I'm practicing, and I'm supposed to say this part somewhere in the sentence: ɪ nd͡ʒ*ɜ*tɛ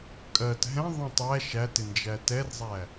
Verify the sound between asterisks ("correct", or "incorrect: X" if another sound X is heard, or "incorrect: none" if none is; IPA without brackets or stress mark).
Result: incorrect: æ